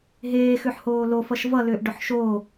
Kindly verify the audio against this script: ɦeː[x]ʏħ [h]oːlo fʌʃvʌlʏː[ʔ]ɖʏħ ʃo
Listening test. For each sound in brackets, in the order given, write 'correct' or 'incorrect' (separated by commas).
correct, correct, correct